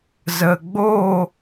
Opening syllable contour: low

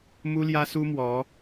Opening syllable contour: high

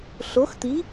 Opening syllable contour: rising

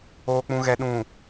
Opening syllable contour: low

